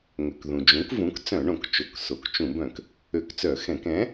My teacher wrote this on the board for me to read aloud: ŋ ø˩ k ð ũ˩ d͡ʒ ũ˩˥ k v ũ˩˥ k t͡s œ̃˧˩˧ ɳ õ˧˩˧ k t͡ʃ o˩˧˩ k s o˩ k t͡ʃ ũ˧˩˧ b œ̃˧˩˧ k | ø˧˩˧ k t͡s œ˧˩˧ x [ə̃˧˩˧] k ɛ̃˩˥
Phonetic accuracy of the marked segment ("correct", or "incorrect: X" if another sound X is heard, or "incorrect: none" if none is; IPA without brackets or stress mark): incorrect: ɛ̃˧˩˧